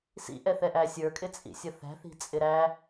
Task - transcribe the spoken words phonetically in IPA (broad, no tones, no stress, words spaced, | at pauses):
sḭʔɛθɛʔæ sʲə˞kʼɪt͡sʼḭsʲʌ θæ̤θi̤t͡sʼɪ ɾæ